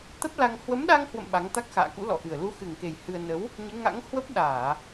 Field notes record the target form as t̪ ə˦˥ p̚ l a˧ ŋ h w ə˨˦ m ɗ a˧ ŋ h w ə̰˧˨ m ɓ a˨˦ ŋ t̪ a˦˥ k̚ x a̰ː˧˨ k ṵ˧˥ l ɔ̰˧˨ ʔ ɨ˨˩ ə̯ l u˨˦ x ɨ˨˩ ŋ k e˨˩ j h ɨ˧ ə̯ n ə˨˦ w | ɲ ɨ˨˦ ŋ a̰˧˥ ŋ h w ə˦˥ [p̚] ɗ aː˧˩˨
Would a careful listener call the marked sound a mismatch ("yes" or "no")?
no